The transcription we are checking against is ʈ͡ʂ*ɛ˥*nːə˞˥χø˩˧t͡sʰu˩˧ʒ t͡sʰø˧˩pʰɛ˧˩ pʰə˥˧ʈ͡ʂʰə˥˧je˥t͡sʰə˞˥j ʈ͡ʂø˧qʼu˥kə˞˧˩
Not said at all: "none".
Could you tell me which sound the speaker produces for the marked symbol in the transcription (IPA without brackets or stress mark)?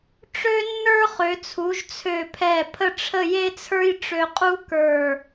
ø˥